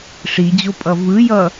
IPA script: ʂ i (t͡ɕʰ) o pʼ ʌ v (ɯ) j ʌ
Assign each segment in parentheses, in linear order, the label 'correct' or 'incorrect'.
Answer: incorrect, correct

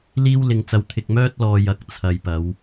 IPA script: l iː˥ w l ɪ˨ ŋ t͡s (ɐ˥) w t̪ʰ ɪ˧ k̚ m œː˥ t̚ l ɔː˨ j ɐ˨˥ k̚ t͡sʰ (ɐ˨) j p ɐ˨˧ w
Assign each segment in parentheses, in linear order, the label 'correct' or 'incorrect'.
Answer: incorrect, correct

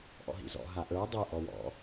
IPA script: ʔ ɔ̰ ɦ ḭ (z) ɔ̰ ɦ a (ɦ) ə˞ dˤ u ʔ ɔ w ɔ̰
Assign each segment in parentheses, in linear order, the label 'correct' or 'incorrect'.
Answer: correct, incorrect

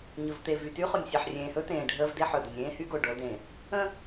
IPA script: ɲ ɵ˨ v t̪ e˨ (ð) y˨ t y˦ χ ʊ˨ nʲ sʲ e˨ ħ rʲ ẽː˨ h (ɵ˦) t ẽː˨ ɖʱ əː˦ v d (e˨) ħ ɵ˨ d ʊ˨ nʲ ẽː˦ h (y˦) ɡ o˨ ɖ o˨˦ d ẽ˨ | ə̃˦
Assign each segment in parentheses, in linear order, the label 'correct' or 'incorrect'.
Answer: incorrect, correct, incorrect, correct

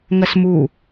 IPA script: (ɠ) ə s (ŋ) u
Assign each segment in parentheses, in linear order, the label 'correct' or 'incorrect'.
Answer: incorrect, incorrect

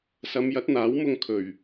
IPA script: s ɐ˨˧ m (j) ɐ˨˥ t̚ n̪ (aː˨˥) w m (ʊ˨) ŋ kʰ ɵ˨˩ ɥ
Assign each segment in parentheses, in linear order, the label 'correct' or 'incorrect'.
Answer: correct, correct, incorrect

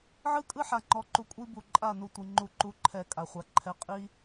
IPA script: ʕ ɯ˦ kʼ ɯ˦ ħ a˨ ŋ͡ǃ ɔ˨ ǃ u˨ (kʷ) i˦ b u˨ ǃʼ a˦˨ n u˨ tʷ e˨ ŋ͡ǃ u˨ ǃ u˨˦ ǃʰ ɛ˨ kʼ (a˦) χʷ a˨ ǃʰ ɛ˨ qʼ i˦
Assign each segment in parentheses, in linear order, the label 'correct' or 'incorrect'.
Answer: incorrect, incorrect

